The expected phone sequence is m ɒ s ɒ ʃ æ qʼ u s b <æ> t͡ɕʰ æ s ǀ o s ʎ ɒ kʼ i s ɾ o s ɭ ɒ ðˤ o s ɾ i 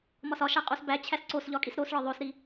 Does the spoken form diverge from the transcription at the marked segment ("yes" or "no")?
no